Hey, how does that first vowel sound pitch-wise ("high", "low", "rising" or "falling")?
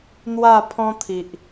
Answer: falling